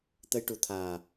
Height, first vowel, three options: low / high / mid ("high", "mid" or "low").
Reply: mid